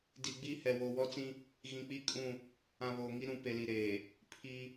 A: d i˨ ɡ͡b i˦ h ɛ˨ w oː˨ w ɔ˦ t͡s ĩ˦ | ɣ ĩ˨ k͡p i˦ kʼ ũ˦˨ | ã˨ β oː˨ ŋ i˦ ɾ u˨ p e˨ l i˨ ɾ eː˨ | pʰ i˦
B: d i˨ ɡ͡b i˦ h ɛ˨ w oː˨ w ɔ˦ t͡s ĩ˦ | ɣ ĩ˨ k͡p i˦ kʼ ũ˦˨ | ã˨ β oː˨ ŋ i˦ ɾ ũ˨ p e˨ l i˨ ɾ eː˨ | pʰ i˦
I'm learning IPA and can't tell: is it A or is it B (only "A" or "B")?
B